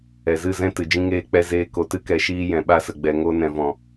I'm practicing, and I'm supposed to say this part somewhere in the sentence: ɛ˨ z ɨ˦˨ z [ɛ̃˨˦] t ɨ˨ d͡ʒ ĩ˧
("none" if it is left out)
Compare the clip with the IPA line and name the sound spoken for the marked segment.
ɛ̃˦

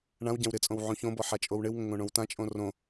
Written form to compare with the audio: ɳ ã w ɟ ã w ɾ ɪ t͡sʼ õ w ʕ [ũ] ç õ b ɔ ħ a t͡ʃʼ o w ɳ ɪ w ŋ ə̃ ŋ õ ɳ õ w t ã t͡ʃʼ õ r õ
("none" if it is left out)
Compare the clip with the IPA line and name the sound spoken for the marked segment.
ũ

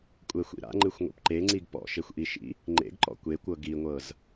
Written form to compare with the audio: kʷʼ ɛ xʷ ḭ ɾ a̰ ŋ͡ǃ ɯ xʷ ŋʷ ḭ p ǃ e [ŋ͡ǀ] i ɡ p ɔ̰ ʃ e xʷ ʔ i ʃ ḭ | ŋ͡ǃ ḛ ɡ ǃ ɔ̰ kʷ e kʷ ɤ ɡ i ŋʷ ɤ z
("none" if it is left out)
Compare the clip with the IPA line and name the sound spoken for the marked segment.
ŋ͡ǀ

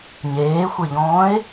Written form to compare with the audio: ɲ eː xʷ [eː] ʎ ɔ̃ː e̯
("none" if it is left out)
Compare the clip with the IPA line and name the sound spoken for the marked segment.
e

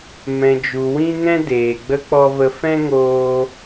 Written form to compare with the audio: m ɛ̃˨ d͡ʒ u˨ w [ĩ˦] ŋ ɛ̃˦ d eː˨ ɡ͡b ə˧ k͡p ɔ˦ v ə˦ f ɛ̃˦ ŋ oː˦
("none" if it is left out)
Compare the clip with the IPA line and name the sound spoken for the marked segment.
ĩ˦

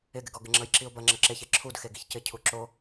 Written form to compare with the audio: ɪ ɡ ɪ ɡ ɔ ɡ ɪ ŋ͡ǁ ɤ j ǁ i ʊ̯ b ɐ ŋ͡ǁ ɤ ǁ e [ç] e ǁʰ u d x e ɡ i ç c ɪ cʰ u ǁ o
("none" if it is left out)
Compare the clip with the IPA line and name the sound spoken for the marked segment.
ç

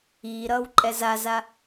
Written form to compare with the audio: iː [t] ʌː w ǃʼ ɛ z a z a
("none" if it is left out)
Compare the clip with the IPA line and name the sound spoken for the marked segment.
ɾ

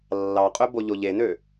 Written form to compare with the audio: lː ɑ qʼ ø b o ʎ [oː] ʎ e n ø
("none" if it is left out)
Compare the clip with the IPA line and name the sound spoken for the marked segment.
o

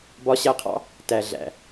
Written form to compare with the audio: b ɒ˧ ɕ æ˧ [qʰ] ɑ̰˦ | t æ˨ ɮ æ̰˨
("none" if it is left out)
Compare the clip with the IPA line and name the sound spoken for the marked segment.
qʰ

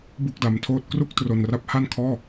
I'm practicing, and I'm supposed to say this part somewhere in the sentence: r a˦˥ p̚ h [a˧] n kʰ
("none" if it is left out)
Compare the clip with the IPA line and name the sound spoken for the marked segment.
a˥˩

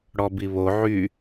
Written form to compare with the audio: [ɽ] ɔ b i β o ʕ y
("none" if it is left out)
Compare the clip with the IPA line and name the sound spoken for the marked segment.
ɽ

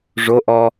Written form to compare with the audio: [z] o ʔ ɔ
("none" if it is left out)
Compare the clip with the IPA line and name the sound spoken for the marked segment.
ʐ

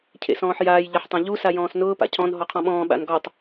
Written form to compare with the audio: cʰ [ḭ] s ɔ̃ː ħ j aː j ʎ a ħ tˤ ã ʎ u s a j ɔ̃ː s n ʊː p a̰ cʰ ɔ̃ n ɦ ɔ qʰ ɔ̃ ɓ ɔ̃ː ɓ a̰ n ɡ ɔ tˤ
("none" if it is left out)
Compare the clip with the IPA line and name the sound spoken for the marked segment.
ḛ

